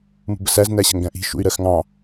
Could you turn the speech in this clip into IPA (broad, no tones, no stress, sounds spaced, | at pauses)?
m ṳ b ə s æ z n æ ɕ ə̤ ŋ ɡ æ̃ ʔ i̤ ʃ ṵ y̯ ɾ ɜ x ŋ ɑ̃